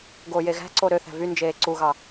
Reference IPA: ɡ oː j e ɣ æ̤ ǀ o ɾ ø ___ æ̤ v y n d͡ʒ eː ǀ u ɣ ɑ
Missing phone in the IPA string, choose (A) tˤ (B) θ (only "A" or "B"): B